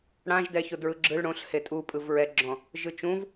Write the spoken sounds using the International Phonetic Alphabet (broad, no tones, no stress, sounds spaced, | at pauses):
ɽ ã ʒ d ɛ ç o d ɹ ɯ ɡ͡ǁ ɯ ɭ ɽ õ ɬ h e tʼ u pʼ ɯ v ɹ ɛ ɡ͡ǁ ɔ̃ | ʒ ɯ t͡ʃ ũ v